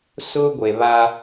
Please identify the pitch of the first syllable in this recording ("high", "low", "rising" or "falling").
high